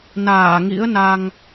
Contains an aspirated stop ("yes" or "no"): no